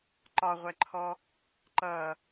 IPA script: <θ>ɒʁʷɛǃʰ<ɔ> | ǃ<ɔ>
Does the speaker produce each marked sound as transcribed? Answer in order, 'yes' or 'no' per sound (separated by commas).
no, yes, no